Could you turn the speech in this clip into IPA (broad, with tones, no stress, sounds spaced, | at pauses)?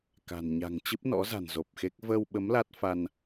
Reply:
k a̤˨˩ n ɲ a̤˨˩ ŋ t͡ɕ ɨ˦˥ p̚ n ɔ̰˧˥ z a̤˨˩ n z o˨˩ p̚ x e˦˥ k̚ v əː˧ w ɓ ə˨˦ m l a˦˥ t̚ f a˧ n